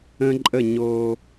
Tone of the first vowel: high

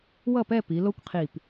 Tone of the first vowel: falling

